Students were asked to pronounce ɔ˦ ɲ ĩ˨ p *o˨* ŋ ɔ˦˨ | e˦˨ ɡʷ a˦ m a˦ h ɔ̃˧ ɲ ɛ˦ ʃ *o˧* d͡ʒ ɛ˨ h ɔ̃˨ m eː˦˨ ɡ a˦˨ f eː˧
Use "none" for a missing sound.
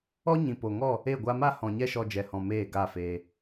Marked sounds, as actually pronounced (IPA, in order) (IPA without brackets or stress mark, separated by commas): o˨, ɔ˧